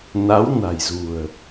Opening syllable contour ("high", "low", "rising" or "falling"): rising